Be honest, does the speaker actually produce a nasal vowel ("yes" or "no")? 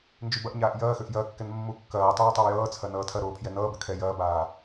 no